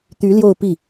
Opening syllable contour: rising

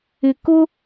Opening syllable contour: low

